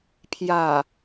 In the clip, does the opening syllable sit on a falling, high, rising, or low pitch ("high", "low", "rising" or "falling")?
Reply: low